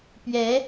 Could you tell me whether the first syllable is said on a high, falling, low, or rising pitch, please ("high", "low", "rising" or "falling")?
rising